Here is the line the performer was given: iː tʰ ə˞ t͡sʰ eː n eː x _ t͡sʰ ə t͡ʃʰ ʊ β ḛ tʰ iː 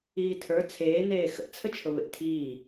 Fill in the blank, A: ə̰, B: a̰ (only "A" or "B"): A